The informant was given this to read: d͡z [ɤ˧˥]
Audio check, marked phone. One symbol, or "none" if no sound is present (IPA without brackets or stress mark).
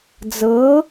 ɤ˧˥